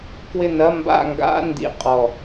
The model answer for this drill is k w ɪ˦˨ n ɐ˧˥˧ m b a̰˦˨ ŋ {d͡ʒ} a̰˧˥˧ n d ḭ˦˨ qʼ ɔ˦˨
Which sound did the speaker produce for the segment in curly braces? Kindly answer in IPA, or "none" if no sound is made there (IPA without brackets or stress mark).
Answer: ɡ